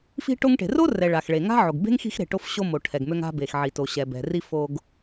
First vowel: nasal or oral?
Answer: oral